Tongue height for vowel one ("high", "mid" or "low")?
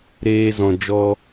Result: mid